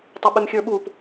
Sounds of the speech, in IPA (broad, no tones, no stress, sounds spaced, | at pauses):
tˤ ɪ ɓ ɪ m xʲ ə˞ ɓ u p